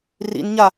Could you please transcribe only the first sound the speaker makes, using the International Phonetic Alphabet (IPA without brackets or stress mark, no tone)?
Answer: r